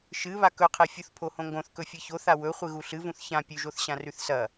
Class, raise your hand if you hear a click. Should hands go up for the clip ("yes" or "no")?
no